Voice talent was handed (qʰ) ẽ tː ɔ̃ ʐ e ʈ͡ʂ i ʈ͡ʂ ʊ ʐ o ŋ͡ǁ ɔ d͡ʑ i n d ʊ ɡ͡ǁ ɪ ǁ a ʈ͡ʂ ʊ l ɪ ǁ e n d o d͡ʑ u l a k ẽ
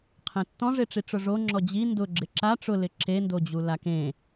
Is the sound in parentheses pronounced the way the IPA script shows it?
yes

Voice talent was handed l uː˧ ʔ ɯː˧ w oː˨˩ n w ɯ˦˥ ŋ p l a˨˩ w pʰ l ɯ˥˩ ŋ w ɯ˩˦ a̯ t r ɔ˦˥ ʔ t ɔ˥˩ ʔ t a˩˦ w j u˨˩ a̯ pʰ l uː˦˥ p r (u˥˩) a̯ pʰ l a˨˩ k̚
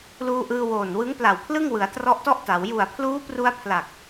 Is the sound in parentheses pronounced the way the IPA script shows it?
no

